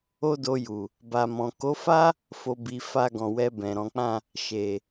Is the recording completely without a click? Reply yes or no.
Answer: yes